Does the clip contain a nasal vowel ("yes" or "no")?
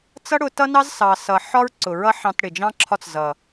yes